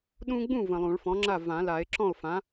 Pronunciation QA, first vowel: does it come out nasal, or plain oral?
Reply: nasal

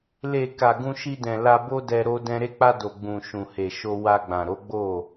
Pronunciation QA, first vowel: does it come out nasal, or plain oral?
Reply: oral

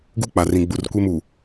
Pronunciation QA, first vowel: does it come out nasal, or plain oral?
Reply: oral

